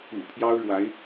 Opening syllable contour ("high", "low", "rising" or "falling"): low